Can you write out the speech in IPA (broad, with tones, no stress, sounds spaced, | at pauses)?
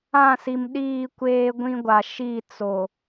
ã˦˨ s i˨ m ɗ iː˦˨ kʷ eː˦ ɡʷ ĩ˦ ɡʷ a˨ ʃ i˦˨ t͡s o˨